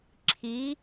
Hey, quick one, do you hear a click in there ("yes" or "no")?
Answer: yes